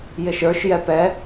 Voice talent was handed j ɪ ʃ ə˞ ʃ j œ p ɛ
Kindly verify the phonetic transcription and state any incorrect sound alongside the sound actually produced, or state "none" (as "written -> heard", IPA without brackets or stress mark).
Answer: œ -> ɛ